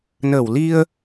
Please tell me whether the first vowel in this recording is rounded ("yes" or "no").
no